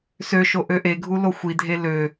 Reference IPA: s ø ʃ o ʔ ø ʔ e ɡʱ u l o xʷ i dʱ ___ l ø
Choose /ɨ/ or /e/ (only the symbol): e